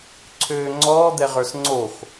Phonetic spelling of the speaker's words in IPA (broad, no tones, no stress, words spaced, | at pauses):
ǀʰøːŋ͡ǀɔː d̪ɛʁə˞sŋ͡ǀox